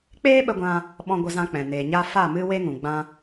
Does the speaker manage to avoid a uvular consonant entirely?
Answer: yes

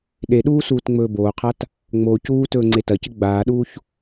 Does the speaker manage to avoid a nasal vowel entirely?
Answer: yes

